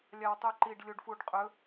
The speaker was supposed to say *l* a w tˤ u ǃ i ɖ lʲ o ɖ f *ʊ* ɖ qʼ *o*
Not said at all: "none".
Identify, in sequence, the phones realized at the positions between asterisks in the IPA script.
lʲ, u, ɵ

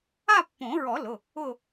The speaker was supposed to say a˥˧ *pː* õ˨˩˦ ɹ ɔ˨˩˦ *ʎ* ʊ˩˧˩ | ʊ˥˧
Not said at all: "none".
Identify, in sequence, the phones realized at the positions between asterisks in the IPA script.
pː, l

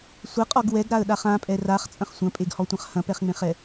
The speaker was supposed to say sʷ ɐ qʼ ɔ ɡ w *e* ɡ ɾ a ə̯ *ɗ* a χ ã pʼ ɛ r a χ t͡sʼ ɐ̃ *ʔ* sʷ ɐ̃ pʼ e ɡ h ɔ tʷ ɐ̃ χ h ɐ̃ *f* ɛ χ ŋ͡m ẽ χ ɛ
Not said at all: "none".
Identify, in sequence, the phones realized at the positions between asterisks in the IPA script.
ɛ, ɗ, χ, p

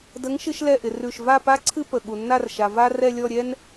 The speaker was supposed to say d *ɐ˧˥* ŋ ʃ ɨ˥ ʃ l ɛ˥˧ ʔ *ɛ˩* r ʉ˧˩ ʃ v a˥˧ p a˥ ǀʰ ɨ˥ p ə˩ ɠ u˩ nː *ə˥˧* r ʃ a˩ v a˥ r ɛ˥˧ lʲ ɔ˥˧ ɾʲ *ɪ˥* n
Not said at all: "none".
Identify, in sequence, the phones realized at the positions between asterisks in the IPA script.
ə˧˥, ɪ˩, a˥˧, ɛ˥

